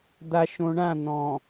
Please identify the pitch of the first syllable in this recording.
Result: low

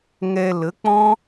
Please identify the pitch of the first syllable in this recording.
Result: low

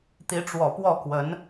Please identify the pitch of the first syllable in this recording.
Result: rising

